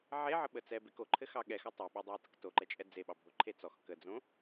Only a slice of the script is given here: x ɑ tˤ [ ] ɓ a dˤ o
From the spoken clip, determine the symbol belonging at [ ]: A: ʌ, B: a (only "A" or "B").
B